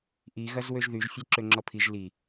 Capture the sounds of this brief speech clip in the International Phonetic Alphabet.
ʔ i ɣ ɐ z w ø ʒ ð y ʒ fʲ ɛ ǁ ø ŋ͡ǁ ɔ pʰ i ʒ l i

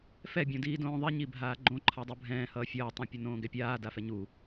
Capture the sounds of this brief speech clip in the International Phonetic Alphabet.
f ɛ bʲ õ d iː d õː ðˤ i ɲ i bʱ aː ɡ͡ǃ õ ǃʰ a dˤ u bʱ ɛ̃ː h ʌː fʲ ʌː tˤ ã pʲ ʌ n õː ɡ ɛ pʲ aː d a f ɛ ɲ u

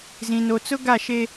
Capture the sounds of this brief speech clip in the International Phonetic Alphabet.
z ĩ˨ n o˨ t͡s ʊ˦ ɡ a˦˨ ʃ e˦

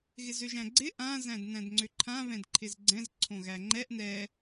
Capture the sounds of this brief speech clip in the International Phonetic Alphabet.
ɣ ɪ z ø ʒ æ̃ ɡ͡ǀ ɪ ʔ ã z æ̃ d n æ̃ d ŋ͡ǀ ø ǃʰ ã β ɛ̃ d ǃʰ ɪ z ɡ͡ǀ ɛ̃ z ǀʰ õ ɣ æ ŋ͡ǃ ɛ ʔ n ɛ

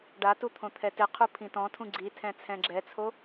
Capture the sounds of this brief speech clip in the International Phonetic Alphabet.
ɖ a t u t̪ʰ õ t̪ʰ ɛ t ɪ qʰ u pʰ ĩ t ɔ̃ tʰ ũ ɡ͡ǀ i tʰ ɛ̃ t͡sʰ ɛ̃ ɡ͡ǁ ɛ t͡sʰ o

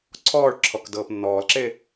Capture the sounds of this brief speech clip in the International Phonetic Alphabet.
ǀʰ ɔː ɭ ǁʰ ɔ k d ɤː p nː ɔː l ǁ e

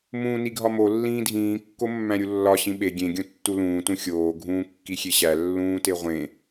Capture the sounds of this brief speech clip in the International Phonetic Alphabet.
m ũː n i ɡʱ ɒ m o lː ĩː dʱ ĩː kː o mː æ̃ ɾʲ u lː ɒ ɕ ĩ ɓ e ɡʲ ẽ ɡʲ õ tː u l ũː t ũ xʲ oː ɡʱ ũː kː i xʲ e ɕ æ lː ũː t e ʁʷ ẽ

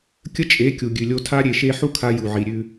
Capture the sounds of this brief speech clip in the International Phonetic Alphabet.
kʲ ə˦ t͡ʃʼ e˨˦ kʲ u˨ ɡʲ ʉ˨ lʲ o˧ tʰ a˦ ɾʲ e˧ ʃ e˦ ħ u˦ kʰ a˧ j u˨ ʕ i˨ ɾʲ ʉ˧

